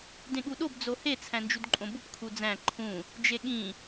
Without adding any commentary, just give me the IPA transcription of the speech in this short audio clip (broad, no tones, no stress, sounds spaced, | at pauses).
d ẽ ɠ u ɗ o b d͡z o h e t͡sʰ æ̃ n d͡ʒ u d ǃʼ õ b u p kʰ u d͡z æ̃ ǃʰ ũ | d͡ʒ e ɠ ĩ